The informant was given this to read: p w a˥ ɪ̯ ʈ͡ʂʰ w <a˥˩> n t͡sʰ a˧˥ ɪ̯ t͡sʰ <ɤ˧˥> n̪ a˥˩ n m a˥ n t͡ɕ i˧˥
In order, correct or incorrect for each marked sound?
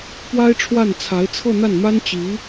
correct, incorrect

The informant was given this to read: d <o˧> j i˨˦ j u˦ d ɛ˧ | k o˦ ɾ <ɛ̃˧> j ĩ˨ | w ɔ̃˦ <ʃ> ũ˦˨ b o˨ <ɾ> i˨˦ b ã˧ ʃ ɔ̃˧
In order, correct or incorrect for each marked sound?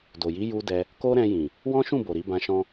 incorrect, correct, correct, correct

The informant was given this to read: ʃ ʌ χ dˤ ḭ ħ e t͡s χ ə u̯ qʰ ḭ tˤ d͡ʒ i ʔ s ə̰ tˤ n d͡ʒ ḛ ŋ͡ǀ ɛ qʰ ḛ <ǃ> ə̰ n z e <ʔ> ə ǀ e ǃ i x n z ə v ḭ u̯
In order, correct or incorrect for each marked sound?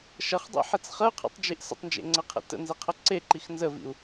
incorrect, incorrect

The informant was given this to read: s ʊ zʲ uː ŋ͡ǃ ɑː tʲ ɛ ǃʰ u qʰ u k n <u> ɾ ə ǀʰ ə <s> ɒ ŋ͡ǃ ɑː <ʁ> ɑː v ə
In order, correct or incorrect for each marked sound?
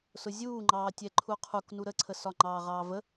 correct, correct, correct

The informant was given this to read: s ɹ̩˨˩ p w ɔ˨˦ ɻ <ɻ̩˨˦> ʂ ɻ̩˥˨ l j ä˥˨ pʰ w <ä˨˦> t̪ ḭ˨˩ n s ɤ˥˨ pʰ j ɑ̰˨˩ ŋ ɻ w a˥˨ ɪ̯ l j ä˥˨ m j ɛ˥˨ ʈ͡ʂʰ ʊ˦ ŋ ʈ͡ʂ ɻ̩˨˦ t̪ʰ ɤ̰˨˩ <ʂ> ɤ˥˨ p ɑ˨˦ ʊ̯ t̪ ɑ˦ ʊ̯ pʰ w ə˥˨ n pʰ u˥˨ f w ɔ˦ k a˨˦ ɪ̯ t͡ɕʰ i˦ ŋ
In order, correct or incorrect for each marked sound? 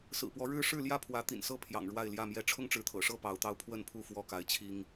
incorrect, correct, correct

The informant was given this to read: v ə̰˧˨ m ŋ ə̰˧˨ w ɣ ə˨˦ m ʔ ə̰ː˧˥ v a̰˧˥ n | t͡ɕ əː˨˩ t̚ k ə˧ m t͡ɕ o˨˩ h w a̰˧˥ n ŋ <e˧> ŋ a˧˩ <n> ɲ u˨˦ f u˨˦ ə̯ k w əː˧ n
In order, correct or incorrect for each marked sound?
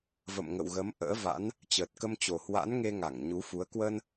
correct, incorrect

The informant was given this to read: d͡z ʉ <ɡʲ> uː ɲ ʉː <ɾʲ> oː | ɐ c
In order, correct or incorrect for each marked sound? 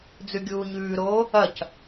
correct, incorrect

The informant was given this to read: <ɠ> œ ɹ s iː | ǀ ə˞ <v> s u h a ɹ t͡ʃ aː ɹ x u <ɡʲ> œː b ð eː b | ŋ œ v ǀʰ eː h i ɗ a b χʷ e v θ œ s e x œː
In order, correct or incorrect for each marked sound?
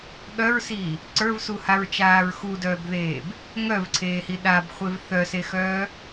correct, correct, incorrect

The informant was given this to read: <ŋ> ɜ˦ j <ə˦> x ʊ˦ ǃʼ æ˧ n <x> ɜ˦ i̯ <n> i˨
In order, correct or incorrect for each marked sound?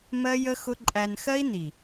incorrect, correct, correct, correct

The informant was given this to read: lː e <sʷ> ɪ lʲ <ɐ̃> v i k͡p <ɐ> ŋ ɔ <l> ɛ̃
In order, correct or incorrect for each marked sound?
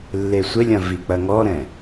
correct, correct, correct, incorrect

